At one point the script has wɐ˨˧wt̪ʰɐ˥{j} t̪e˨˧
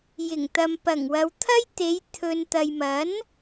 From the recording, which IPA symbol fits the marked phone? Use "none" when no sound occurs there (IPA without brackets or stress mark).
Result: j